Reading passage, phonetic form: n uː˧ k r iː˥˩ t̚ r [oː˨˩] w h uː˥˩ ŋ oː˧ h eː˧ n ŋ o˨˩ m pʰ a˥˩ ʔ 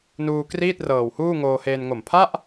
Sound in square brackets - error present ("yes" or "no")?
yes